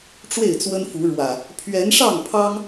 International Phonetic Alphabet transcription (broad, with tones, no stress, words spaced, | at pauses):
ʈ͡ʂwe˥˨ɪ̯t͡swə˦nfu˨˦ɻwä˨˩ | pʰɥɛ˨˦nʂɑ˥˨ŋpʰɑ˦ŋ